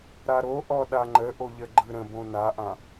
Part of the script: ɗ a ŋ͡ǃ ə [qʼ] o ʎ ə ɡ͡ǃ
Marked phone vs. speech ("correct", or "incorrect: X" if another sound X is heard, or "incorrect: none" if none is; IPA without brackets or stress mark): incorrect: ʔ